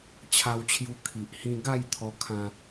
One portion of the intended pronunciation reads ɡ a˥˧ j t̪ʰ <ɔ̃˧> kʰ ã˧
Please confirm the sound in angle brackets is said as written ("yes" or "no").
no